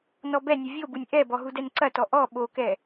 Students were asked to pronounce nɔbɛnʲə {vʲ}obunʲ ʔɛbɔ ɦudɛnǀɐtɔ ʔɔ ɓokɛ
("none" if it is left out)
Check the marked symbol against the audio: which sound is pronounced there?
vʲ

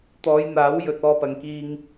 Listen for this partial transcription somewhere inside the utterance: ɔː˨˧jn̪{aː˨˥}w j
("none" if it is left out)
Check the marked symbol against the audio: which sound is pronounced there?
aː˨˥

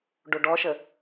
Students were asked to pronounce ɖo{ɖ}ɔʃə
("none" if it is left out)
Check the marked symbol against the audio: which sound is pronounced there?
ɖ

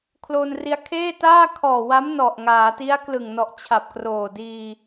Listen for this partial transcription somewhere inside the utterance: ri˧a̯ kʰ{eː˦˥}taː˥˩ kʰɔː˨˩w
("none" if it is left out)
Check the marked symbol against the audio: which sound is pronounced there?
eː˥˩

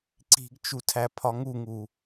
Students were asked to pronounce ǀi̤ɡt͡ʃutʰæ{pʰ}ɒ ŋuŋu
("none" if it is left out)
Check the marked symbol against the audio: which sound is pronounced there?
pʰ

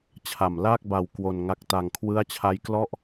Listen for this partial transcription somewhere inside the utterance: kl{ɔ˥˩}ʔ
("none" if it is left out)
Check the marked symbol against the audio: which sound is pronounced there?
ɔ˥˩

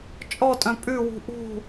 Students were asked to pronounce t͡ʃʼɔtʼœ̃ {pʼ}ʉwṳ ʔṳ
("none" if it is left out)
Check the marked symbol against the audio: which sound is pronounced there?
pʼ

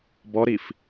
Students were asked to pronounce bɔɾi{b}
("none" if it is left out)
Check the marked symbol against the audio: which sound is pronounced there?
f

